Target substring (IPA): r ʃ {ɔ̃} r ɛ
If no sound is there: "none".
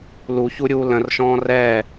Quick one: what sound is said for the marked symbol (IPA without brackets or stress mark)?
ɔ̃